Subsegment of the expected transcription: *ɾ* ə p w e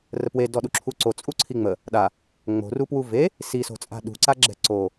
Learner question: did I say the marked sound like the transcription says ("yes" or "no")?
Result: no